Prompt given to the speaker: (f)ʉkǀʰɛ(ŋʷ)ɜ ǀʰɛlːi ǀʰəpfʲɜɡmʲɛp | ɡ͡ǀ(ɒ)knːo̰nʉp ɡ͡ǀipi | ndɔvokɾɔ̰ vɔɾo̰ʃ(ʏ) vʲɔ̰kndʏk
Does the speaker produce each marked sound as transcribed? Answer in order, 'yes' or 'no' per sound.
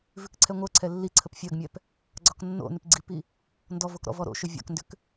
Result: no, yes, yes, yes

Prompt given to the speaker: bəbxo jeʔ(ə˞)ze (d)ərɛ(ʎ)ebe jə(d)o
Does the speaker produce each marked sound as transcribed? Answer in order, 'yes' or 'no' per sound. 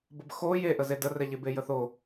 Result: no, yes, yes, no

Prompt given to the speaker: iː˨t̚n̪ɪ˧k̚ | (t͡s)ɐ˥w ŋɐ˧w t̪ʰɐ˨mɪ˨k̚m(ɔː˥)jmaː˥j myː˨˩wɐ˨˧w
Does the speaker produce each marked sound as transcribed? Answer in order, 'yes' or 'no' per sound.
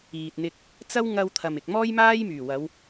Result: yes, yes

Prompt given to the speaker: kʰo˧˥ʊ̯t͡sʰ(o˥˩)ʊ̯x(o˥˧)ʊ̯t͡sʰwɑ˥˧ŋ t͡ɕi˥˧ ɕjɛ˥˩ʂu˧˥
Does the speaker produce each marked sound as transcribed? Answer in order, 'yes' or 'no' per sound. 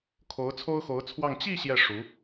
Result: no, no

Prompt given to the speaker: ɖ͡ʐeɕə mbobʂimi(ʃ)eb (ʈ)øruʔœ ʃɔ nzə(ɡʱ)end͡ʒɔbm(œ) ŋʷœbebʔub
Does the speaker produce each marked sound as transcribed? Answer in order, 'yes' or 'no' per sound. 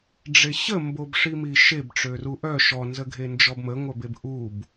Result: yes, no, yes, no

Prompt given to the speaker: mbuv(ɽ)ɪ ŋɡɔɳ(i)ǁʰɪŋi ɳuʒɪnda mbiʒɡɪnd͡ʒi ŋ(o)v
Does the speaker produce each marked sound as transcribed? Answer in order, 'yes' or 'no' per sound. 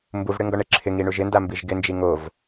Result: yes, no, yes

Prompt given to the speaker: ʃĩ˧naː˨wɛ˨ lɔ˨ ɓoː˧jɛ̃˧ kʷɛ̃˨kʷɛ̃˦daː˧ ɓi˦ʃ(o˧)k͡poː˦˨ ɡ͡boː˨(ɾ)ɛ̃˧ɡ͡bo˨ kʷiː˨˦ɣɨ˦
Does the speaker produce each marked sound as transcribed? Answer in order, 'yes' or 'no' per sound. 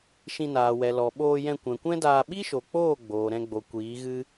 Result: no, yes

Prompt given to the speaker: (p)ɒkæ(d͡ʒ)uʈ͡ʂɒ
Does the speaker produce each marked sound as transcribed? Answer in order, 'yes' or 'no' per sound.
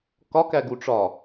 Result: no, no

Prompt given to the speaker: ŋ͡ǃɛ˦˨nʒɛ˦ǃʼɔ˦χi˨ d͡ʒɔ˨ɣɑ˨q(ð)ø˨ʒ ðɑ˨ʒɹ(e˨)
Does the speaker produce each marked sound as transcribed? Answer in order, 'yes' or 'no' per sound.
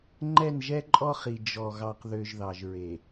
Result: yes, yes

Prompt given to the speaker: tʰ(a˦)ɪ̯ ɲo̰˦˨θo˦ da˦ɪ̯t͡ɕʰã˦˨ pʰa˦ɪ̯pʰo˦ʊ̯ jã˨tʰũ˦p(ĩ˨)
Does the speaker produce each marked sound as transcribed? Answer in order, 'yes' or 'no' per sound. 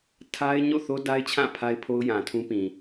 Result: yes, yes

